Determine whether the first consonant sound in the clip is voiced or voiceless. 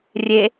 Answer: voiced